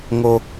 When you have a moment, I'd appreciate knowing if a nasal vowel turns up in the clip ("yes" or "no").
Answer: no